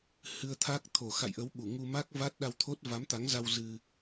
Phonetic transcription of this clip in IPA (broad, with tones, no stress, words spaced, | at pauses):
hɨ˧ə̯t̪ʰa˦˥k̚ t̪ʰo˨˩xa̰˧˨jʔə˨˦w ɓu˧˩ŋu˧ma˦˥k̚ va˦˥t̚ɗa˧wt̪ʰo˦˥t̚ va˨˦mt̪a˨˦ŋza˧w zɨ˧